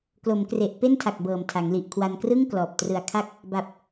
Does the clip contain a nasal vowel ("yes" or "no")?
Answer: no